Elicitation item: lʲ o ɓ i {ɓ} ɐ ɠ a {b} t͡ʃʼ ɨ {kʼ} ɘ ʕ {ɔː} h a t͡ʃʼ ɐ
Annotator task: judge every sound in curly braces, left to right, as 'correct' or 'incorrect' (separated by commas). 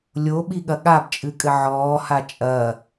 incorrect, correct, correct, correct